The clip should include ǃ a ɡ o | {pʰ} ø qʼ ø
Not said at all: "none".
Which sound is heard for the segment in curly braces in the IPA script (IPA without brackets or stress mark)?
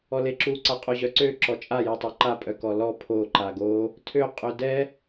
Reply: tʰ